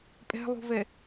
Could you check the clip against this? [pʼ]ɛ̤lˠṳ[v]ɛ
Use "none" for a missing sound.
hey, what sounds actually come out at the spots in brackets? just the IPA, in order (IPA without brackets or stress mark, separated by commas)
pʼ, v